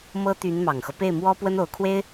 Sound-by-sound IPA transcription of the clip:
m ɤ˥ t̪ y˧˥ n m ɑ˨˩ ŋ x ɤ˦ p e˥˩ ɪ̯ m w ɔ˥ p w ə˥ n o˧˥ ʊ̯ kʰ w e˥ ɪ̯

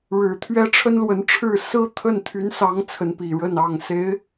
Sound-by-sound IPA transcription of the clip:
ɻ ɻ̩˨˩ t̪ʰ ɥ ɛ˥ ʈ͡ʂʰ ə˥ n l w ə˧˥ n ʈ͡ʂʰ ɻ̩˥˩ s ɹ̩˥ t̪ʰ ə˥˩ n t̪ʰ y˧˥ n s ɑ˧˥ ŋ t͡sʰ ə˧˥ n p i˨˩ ɻ ə˥˩ n ɑ˨˩ ŋ s e˧˥ ɪ̯

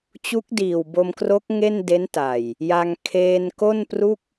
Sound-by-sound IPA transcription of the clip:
t͡ɕ u˦˥ k̚ d iː˨˩ w b o˧ m k r o˦˥ k̚ ŋ e˥˩ n d e˦˥ n t a˨˩ j | j a˧ ŋ kʰ eː˧ n k o˥˩ n p r u˥˩ k̚

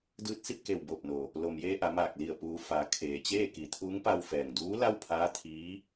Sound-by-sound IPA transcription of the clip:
d ɯː˧ t̚ s i˥˨ p̚ k e˧˩ w b o˧˩ p̚ n o˩ | l o˩ m j eː˧ ʔ a˩˧ m aː˧˩ k̚ l i˧˩ ə̯ p uː˩˧ f a˩˧ kʰ eː˩ t͡ɕ eː˥˨ k i˩˧ t̪ʰ uː˧˥ ŋ p a˧ w f ɛː˩ ŋ d uː˧˥ l a˥˨ w pʰ aː˧˥ t̪ʰ iː˧˥

